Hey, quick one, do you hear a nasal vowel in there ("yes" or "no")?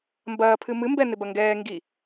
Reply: no